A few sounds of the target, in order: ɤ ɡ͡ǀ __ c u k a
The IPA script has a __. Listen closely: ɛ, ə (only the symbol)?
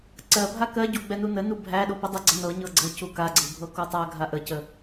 ə